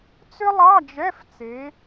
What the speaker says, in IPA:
t͡s ʏ˥ lˠ ɑ˧˥˧ d͡ʒ ɛ˧˥˧ f t͡s e˨˦

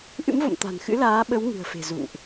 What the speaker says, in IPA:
ʔ ɨ̰˧˥ m v o̰˧˨ m t̪ a̤˨˩ n x ɨ̰˧˥ l aː˨˦ ɓ ə˨˦ w ŋ ɨ̤˨˩ ə̯ f e̤˨˩ z ṵ˧˨ ŋ ʔ

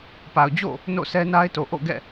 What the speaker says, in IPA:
p a˨ ʊ̯ d͡ʑ o̰˦˨ | n o̰˦˨ s ɛ˦ n a˦ ɪ̯ t o˨ ʔ o̰˦˨ ɡ ɛ̰˦˨

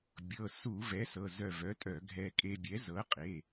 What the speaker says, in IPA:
bʲ ɤ˩˧˩ s u˧˩˧ v ɛ˩˥ s ɤ˩˧˩ z œ˧˩ v œ˩˥ tʼ œ˧˩˧ ɡʱ ɛ˧ kʼ e˧ bʲ ɛ˩˥ z ɤ˩˥ qʼ e˩˧˩

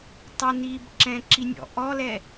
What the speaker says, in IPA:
tˤ ø n iː b ǁ ɛ̃ ǁ i nʲ ɔ̰ ʔ ɔ l ɛ

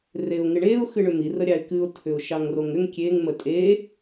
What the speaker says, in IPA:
r e ʊ̯ ŋ ɪ ɳ e ʊ̯ x ɨ ɳ ʏ m i r ə ɾʲ ɑ ɪ̯ k ɨ ʊ̯ tʰ ʏ ʊ̯ ʃ ɑ ŋ r o ŋ ʏ ŋ kʲ e ŋ m ə tʼ e

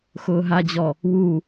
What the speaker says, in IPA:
x ʊː ɦ a d͡ʑ ɔ | w u

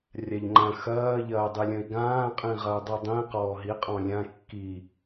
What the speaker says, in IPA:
rʲ a ʎ ŋ͡ǃ ɐ̃ x ɐː ʎ ɐː dˤ i lʲ ɐ̃ i̯ ɡ ãː qʼ ĩ ʁ ɐ u̯ dˤ i dˤ ĩ q ɔː ɦ i qʼ ɔ̃ lʲ ã kː i

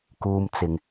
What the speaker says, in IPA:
k uː˥ m t͡s ɪ˧ ŋ

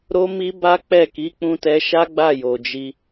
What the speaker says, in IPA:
ɾ o˦ m i˦ b a˦ k͡p ɛ˦˨ k i˨˦ k͡p ũ˧ t ɛ˧ ʃ a˦ ɡ͡b a˦˨ j o˨ d͡ʒ i˧

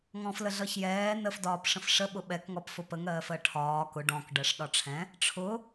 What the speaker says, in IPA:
ŋ ɔ̃ f l ə ɮ ʌ ç j ɛː n ə f d ɒː p ʂ ə̃ f ʂ ə ɓ ʊ ɓ ɛ k ŋ ɔ p f ʊ p ə ŋ ɜː f ɜ ʈʰ ɒː k ʊ ɖ ɔ̃ k ɖ ɜ ʂ ɗ ɒ ʈ͡ʂʰ ɛ̃ | ʈ͡ʂʰ ʊ

